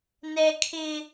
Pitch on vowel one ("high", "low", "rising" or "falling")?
high